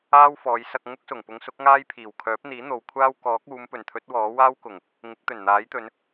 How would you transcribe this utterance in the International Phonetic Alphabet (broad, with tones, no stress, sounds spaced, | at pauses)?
aː˥ w f ɔː˨˧ j s ɐ˧ k̚ ŋ ʊ˥ k̚ s ʊ˨˩ ŋ p ʊ˧ ŋ s ʊ˥ k̚ ŋ aː˥ j pʰ iː˨˩ w kʰ œː˨˥ p̚ n̪ iː˨˥ n̪ o˨ w kʷʰ aː˥ w k ɔː˨˥ k̚ uː˨˧ m p ɵ˨˩ n t̪ʰ ɵ˨˥ t̚ w ɔː˨˥ w aː˥ w k ʊ˨˩ ŋ | ŋ ɪ˨˥ k̚ t̪ ɵ˨˩ n n̪ aː˨˥ j t̪ ɵ˨˧ n